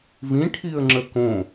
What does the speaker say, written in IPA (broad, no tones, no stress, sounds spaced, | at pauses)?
v ĩ ʈʰ i ə̯ ŋ͡ǁ ə k õ